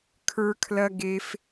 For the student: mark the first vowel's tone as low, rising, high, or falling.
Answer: high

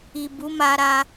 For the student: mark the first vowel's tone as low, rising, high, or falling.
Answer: low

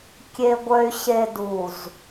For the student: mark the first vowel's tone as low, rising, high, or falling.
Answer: low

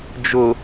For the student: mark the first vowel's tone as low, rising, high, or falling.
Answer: low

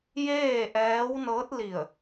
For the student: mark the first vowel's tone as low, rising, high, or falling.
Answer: falling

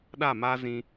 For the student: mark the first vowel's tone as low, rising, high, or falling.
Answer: falling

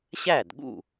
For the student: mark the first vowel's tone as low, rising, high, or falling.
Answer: falling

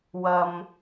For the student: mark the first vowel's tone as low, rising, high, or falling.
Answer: low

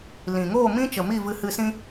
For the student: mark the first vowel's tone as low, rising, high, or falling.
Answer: low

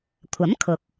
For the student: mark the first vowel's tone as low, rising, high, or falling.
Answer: rising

